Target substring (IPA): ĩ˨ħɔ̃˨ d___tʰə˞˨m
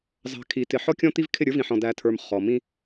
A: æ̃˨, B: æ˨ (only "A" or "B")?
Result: B